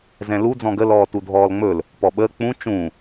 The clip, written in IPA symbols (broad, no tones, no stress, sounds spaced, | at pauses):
z ɛ̃ l u d͡z ɔ̃ ɡ ə l ɔː t u dʱ ɔː l ŋ͡m ɵ l | p ɔ ɓ əː k͡p ũ t͡ʃ ũ